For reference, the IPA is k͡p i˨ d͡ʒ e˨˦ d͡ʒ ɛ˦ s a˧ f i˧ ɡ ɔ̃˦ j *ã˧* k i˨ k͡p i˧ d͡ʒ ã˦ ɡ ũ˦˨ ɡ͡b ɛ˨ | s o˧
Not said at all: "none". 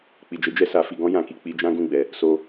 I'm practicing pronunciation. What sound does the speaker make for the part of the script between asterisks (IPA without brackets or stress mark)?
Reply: ã˧